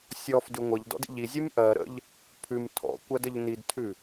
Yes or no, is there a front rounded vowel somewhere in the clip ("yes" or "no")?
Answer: no